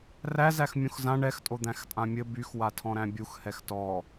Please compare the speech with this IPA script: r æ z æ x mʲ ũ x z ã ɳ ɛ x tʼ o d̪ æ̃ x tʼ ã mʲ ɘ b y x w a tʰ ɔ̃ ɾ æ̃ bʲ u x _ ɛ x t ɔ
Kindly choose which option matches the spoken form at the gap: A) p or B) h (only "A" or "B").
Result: B